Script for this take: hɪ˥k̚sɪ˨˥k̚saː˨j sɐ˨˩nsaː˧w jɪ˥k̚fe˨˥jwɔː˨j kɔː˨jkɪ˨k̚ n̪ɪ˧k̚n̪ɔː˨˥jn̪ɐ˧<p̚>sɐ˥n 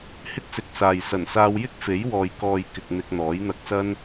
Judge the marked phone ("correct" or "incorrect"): incorrect